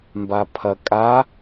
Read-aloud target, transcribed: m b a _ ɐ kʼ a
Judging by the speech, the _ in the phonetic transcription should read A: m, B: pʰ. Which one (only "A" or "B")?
B